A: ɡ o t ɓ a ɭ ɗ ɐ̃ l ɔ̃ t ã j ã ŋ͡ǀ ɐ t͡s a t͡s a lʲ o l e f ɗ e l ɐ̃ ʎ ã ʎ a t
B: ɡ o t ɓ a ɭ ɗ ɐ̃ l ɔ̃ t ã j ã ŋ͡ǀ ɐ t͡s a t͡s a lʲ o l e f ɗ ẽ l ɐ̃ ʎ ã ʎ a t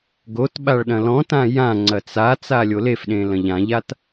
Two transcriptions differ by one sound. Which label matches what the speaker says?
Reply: B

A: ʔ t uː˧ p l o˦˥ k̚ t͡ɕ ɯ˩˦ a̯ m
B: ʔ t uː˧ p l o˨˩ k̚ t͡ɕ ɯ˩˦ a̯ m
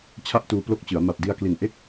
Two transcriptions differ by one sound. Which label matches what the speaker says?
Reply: A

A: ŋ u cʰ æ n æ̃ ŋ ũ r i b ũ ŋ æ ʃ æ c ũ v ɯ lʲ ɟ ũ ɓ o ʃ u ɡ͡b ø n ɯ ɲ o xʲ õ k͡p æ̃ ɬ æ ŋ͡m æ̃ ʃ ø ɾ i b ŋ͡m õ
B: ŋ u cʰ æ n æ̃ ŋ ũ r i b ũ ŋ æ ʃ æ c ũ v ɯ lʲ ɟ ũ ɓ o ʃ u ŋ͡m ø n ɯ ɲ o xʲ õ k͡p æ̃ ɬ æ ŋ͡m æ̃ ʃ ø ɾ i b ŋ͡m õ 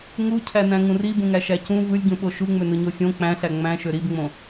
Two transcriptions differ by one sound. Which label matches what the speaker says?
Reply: B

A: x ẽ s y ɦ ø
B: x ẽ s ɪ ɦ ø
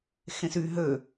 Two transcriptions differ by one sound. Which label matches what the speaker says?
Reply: A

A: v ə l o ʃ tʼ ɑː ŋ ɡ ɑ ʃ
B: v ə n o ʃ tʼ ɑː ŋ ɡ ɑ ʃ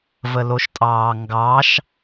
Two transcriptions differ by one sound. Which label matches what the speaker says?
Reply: A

